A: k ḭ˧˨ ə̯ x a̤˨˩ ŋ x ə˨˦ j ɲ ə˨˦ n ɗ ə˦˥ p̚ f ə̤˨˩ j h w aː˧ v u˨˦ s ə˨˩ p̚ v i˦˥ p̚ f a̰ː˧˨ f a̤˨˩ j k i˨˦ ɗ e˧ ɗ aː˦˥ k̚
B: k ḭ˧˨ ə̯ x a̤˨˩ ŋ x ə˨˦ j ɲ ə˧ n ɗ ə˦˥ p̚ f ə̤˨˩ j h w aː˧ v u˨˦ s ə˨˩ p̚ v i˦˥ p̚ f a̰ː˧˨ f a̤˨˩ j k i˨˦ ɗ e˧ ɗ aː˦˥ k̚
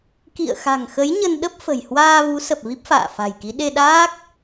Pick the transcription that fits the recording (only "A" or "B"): B